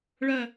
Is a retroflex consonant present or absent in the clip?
present